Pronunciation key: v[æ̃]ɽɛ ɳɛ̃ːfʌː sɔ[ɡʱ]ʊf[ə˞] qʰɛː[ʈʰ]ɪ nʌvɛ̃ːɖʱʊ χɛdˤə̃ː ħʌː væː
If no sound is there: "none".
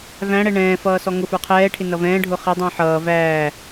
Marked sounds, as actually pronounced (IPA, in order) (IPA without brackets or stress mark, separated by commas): æ̃, ŋ, ə˞, ʈʰ